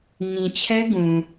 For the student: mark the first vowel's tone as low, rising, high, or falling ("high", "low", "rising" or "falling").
low